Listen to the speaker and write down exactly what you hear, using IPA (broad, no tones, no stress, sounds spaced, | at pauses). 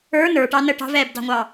ə˞ n ə˞ ʈ ɑ n ə ʈ ɑ̤ v ɛː b d ɑ̤ ŋʷ ɑː